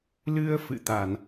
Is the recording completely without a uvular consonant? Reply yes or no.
yes